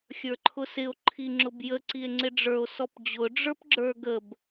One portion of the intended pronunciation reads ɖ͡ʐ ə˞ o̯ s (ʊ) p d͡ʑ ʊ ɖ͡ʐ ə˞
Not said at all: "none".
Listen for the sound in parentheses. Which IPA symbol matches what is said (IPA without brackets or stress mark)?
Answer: ɔ